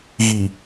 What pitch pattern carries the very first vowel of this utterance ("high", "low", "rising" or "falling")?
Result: low